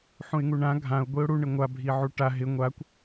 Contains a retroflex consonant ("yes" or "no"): yes